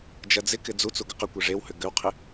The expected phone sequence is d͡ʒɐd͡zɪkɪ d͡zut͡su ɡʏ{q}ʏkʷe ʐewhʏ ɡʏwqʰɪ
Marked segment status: correct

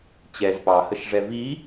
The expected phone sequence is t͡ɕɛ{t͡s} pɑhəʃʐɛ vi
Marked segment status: incorrect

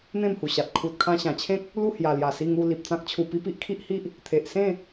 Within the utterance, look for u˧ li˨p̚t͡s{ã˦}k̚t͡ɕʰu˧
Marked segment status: correct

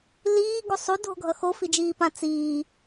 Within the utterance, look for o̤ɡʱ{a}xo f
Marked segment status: incorrect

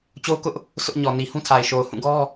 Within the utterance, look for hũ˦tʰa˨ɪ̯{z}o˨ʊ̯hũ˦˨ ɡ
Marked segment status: incorrect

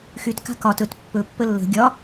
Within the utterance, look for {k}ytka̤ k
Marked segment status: incorrect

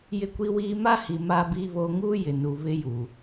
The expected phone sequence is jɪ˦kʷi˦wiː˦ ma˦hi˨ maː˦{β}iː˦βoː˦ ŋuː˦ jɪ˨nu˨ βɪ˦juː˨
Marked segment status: incorrect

